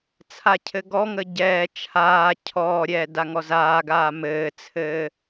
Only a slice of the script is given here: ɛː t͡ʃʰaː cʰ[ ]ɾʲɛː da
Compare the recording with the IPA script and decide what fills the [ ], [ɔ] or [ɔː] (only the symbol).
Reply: ɔː